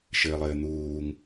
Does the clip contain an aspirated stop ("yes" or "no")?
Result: no